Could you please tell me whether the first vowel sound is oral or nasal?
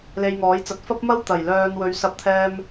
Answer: oral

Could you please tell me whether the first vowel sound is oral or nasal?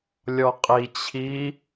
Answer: oral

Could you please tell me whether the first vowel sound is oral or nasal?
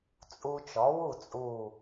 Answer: oral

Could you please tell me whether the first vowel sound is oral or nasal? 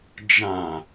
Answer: nasal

